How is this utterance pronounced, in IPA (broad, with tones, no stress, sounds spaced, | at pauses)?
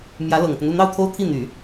m j ä˧˥ l ɤ˨˩ ŋ t̪ ə˦ n u˥˧ n̪ ɑ˥˩ ʊ̯ t̪ʰ o˥ ʊ̯ t̪ʰ i˥˩ n̪ y˨˩˦